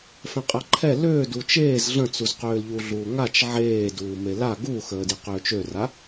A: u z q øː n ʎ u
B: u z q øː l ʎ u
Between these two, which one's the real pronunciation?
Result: B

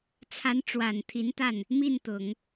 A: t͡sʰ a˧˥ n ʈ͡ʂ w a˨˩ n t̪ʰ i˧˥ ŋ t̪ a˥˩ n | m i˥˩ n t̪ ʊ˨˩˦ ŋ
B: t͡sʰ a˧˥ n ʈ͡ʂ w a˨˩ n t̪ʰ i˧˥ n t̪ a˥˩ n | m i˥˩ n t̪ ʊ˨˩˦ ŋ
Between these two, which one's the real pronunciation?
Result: B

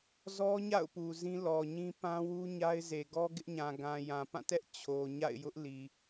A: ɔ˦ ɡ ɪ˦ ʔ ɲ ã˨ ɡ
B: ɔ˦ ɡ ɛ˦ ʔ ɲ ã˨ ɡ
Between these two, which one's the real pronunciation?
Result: A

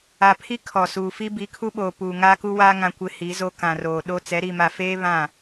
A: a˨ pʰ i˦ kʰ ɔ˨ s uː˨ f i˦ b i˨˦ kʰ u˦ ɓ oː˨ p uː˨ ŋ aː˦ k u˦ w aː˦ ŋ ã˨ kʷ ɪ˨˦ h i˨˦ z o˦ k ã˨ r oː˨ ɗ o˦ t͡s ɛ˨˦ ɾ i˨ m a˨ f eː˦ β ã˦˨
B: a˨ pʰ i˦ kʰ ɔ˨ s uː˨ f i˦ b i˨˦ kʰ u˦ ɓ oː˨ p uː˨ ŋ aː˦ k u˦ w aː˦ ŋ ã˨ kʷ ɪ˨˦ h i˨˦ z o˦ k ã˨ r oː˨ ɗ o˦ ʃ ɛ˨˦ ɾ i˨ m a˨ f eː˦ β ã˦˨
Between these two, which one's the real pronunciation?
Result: A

